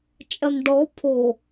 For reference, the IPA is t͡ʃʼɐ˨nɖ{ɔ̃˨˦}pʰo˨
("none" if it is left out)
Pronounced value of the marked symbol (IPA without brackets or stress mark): ɔ˨˦